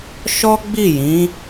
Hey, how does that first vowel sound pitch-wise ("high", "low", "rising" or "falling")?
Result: high